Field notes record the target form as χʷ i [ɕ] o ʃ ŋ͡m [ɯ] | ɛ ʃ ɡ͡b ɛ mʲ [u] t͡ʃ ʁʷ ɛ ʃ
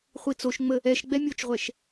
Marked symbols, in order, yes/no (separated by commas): no, no, no